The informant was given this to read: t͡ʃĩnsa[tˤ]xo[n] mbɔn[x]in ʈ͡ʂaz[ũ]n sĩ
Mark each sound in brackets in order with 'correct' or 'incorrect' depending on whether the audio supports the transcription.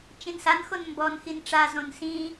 incorrect: n, correct, correct, incorrect: õ

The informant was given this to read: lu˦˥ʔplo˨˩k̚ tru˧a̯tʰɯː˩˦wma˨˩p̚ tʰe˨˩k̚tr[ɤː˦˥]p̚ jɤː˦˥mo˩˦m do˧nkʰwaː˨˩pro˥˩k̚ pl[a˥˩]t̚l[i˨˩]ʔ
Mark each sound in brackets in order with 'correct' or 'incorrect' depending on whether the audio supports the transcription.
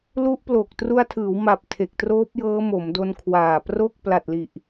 incorrect: oː˦˥, incorrect: a˨˩, correct

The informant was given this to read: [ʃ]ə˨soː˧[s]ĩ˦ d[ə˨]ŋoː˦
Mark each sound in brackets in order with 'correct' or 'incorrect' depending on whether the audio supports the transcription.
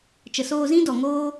incorrect: t͡ʃ, incorrect: z, incorrect: ɔ˨

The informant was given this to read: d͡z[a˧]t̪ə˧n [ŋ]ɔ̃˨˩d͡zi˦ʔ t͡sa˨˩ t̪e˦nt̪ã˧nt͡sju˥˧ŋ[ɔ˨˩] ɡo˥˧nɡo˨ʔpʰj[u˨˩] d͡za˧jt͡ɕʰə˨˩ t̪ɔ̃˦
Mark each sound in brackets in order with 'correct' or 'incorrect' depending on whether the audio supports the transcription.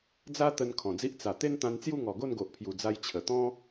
incorrect: a˦, incorrect: kʰ, correct, correct

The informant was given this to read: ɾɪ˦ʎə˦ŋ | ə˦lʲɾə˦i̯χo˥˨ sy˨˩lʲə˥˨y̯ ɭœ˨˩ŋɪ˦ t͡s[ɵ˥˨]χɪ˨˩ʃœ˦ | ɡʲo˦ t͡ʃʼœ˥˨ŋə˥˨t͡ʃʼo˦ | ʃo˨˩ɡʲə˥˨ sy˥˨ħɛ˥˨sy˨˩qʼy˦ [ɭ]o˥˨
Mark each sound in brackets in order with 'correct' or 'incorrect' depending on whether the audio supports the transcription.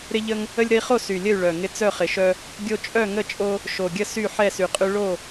incorrect: œ˥˨, correct

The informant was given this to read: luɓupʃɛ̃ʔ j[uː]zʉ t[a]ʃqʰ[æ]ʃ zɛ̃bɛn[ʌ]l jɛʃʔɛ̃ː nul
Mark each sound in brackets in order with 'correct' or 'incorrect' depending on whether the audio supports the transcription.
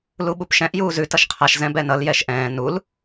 correct, incorrect: ʌ, incorrect: a, correct

